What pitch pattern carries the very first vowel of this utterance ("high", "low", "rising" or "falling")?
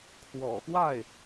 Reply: low